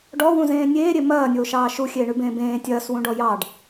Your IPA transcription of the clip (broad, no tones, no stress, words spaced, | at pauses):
ɖɔwũzẽː nʲeːɾʲe mɐːnʲoːʃɑː ʃuxʲeːɳʉbẽː bẽː tʲɐːswũɖɔ jɑɖ